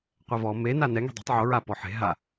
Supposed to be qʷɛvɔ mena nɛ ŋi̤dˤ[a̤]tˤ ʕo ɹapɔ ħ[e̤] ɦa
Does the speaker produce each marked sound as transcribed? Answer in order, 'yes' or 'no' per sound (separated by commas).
yes, yes